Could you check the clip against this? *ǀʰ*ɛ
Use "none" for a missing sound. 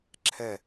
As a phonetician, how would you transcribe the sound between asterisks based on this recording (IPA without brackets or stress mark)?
ǁʰ